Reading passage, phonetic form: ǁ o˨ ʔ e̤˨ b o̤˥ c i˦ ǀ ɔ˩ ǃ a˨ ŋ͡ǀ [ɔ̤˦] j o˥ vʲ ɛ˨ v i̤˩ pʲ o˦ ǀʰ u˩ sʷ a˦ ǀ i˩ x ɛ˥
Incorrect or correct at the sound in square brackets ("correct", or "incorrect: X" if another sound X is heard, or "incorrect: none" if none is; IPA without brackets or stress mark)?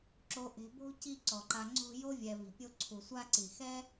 incorrect: o̤˦